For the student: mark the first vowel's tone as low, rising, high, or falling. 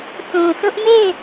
low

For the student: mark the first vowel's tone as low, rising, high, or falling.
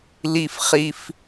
high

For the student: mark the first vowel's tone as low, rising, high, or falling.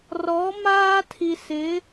rising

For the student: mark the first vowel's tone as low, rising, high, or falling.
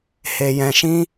low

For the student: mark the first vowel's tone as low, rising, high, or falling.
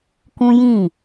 high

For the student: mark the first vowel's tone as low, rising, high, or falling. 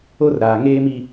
high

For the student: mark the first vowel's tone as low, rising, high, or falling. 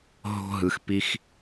high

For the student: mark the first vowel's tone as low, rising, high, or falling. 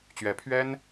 rising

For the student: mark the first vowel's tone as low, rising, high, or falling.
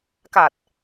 low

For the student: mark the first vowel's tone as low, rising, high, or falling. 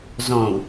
low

